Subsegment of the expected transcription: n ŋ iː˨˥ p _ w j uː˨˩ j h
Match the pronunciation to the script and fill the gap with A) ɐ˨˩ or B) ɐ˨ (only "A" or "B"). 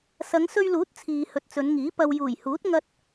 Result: B